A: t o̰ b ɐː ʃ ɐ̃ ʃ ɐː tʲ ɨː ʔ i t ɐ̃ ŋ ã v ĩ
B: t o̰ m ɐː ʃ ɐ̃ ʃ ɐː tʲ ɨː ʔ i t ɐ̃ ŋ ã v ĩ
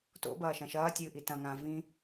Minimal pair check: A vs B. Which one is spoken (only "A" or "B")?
A